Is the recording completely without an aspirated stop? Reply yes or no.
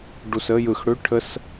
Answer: no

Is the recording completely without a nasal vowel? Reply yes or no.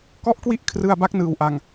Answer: yes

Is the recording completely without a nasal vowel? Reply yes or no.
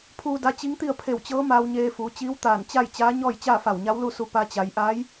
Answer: yes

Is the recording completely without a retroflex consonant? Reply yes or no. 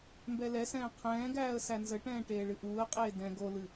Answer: no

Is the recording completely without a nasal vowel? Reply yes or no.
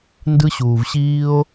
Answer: yes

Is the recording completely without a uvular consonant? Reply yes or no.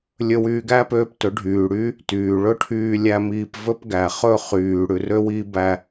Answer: no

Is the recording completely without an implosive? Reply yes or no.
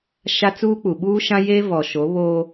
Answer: no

